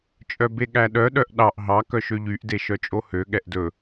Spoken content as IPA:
t͡ʃʼ œ b e ɠ æ ɗ œ ɗ œ ʔ ɗ ɑ ʔ ɦ ɑ k œ ʃ ø ʎ y ʔ d e ʃ œ t͡ʃʼ o h ø ɠ ɛ ʔ d ɵ

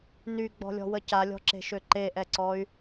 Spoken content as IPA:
n y ɡ͡b ɔ̤ lʲ ɔ̤ w ə c a lʲ ɔ̤ ǁ e̤ ʃ ø ǃ e ʔ ɛ ǀ ɔ y̯

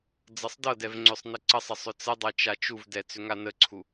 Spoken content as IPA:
d͡z ɤ sˤ d ɤ d ɛ v ŋ͡ǀ ʏ sˤ n ə ǀ ə sˤ ə sˤ ʏ t͡s ə dˤ ɤ t͡ʃ a t͡ʃ u v d ɛ t͡s ʏ ŋ a n ə ǀʰ u

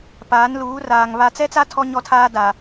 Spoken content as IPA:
p aː˨˦ n l uː˨˦ r aː˨ ŋ β a˨ t͡s ɛ˦ t͡s a˦ tʰ ɔ˦ ɲ ɔ˦ tʰ aː˦ d a˨

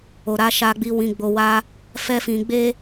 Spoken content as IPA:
o˨ ɾ a˧ ʃ a˧ ɡ͡b i˧ w ĩ˧ ɡ͡b o˧ w a˦ | f ɛ˦ f ĩ˧ ɡ͡b e˦

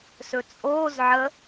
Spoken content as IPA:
s ɵ t͡sʼ oː z ʕ ə

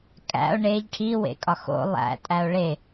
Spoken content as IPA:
kʼ æ̰ o̯ ɳ e ʎ ʈʰ i w ḛ kʼ ɒ x o̰ lˠ æ̰ tʼ æ o̯ ɭ e

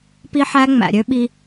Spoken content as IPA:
p i˦ ħ æ˦ ŋ͡m æ̰˨ ɾʲ ø˦ ɓ i˦

